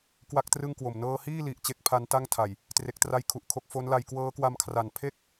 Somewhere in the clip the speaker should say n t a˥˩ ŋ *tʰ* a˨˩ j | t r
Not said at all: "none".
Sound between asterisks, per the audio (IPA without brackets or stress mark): tʰ